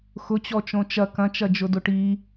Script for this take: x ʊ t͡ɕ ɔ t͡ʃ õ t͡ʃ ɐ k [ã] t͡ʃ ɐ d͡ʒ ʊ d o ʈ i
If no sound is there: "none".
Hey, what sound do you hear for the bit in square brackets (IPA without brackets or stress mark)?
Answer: ɐ̃